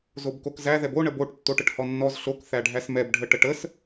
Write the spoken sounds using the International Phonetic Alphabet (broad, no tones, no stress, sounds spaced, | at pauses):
z o b k o k z æ ð ɛ b o ɳ ə b o ʈ tː o ʈ ə ʈ h ɔ nː ɔ z ɬ o k θ æ ɖʱ æ s m ɛ b ɖʱ ə ʈ ə ʈ ə s